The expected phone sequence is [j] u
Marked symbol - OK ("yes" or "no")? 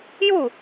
yes